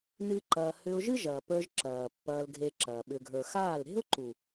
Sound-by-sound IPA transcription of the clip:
n ɨ˦ ǃ ɐː˧ h ʏ˧ ʊ̯ ʒ ɨ˦ ʒ ɐː˨ p ə˞˧ ʒ ǁ ɐː˨ pː ɐː˧ l ɡʱ e˧ ǁ ɐː˨ ɓ ʏ˨ ɡʱ ə˞˨ x aː˦˨ l ɾ e̤˦ ʊ̯ ǃ u˨

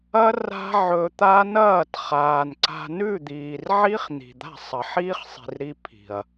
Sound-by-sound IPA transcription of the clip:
ɐ˦ r a̤˦ ʕ ɵ˧ t̪ a˦ n ɐː˦˨ t χ aː˨ n ǀ a̤˧ n ʉ˦˨ d̪ iː˨ r ʕ i˦ χ n̪ i̤˨ d̪ a̤˦˨ sˤ ɐ˨ ħ iː˦ χ sˤ i̤˨ r ɾ i˧ pʰ i̤˨ ɐ̯

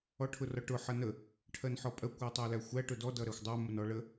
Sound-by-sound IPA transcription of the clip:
ɔ ʈʰ ʊ r ɒ ʈ ʊ ħ ʌ n ə | ʈʰ ɜ n ħ ɔ pʼ ɜ kʷ ɜ tˤ æ l æ xʷ æ ʈ ʊ d ɔ d ʌ ɾ æ xʷ dˤ æ m ʊ n ɔ ɭ ə

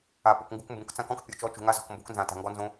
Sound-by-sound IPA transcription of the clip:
a˨ p u˨ k ŋ ɡ ṳ˧ k m b ũ˨ k t͡s ã˦ k ɔ̃˦ k pʲ o˨ t͡ʃ ɔ˧ t͡ʃ ṳ˨ ŋ a˧ z ɔ̤˨ k m b o̤˧ k n z ã˨ t a̤˨ ŋ ɡ ɔ˧ n z õ˧

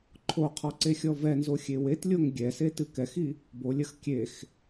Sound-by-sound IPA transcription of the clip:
ǃʰ o qʰ ɔ ǀ e xʲ ɔ v ɛ n z o xʲ e w e t lʲ o ŋ ɡʲ ɛ s e t ɨ k ɛ x i | b o lʲ ɐ x kʲ e x

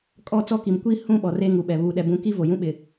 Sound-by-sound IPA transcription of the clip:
kʼ ɔ˦˨ t͡s ɔ˦ k i˨ m kʷ i˦ h ũ˦˨ ɓ ɔ˨ r e˦ ŋ u˨ ɓ ɛ˨ β uː˨ ɗ ɛ˨ b ũ˨˦ k i˦ v o˨ j ũ˦ ɓ ɪ˨

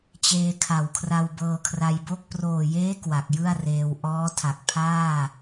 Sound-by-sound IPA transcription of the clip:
t͡ɕ eː˧ kʰ a˨˩ w kʰ r a˧ w b ɤː˧ kʰ r a˧ j b o˥˩ k̚ p r oː˨˩ j eː˦˥ k w a˨˩ k̚ j ɯ˥˩ a̯ r eː˧ w ʔ ɔː˦˥ tʰ a˨˩ k̚ pʰ aː˥˩

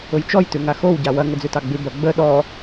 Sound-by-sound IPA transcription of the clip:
ʊ j t͡ʃ ɔ j t ʉ ŋ a x o w ɟ a w ɐ ŋ ə d͡z ʉ t ɑ ɡ͡b ʉ b ɐ ɡ͡b ə ɗ ɔ

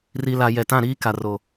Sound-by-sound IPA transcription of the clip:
r i˨ l a˨ j ɛ˨ t ã˦˨ ɾ iː˦ k a˨ r o˨

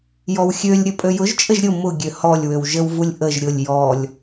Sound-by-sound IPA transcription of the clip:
j ɔ w xʲ ø lʲ ɾʲ ə pʼ ø j ʊ ʒ t͡ʃʼ ə ʒ ɾʲ ʊ m ʊ ɡʲ ø h ɔ lʲ w ø w ʒ ə w v u lʲ ʔ ə ʒ ɾʲ ʊ lʲ j ɔ lʲ

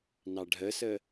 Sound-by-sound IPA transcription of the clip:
n ɑ ɖʱ ə s ə

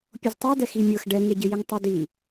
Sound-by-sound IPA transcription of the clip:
pʲ o z tˤ a d ɛ x i mʲ ɤ x ɖ ɛ ŋ e ɟ ɪ j ɪ ŋ tˤ œ d i

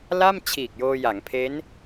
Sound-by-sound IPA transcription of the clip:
l a˥˩ m t͡ɕʰ iː˨˩ k̚ j oː˧ j a˩˦ ŋ pʰ e˦˥ n

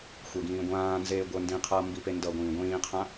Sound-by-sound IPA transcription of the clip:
xʷ e ɡ ĩː ɡʷ ãː n z eː ɡʷ ə˞ n d ĩ qʰ ʌː m b i p e n d ʌ ɡʷ ĩː ɡʷ ĩː qʰ ã

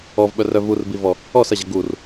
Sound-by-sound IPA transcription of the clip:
ɔ v ɓ œ r œ v u r b i v ɔ | ɔ s ɐ ʑ ɐ ɡ u r

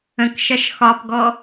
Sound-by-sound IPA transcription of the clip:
ə̃ k ʃ ɐ ʃ x ɒ p ɡ ɔ

